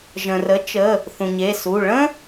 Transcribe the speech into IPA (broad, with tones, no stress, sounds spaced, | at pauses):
ʒ ə̃˩ r ə˩˥ t͡ʃ ə˩˧˩ | θ ũ˩ ɲ e˩˧˩ s u˩˧˩ ɭ ə̃˥